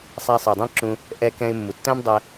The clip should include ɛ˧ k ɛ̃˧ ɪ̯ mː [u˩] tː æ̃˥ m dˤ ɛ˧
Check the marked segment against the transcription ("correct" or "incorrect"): correct